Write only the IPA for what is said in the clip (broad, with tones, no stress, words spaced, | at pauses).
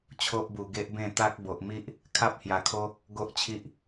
t͡ɕʰo˦ʔbu˨˩ ɡe˦ʔbẽ˥˧ t̪a˦k̚ bo˨ʔmi˦ʔ | kʰa˦p̚hja˨˩kʰo˦ | ɡo˦ʔt͡ɕʰi˦ʔ